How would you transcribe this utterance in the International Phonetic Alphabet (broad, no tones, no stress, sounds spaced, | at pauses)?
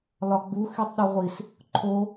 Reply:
l ɒ ɡ͡b u x i tˤ ɗ e ʁʷ i s | ǃʰ o